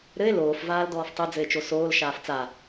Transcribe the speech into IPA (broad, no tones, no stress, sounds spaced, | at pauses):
ɾ ɘ e̯ l oː f v aː l d ɔː f tˤ ɘ d͡z ɘ e̯ t͡ʃ o s oː l ʃ aː f t͡s a